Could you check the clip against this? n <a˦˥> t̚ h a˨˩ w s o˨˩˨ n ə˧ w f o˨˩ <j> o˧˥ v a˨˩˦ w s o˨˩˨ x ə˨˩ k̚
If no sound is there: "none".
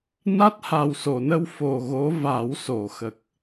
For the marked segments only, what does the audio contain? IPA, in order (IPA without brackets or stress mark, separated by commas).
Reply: a˦˥, ɣ